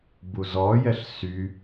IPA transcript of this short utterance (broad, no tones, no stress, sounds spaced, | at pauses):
b u z ɔ j ɛ ɬ s y